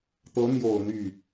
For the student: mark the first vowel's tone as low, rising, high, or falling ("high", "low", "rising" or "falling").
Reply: rising